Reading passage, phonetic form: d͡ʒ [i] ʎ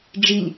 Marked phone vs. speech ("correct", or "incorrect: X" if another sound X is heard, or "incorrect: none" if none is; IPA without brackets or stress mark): correct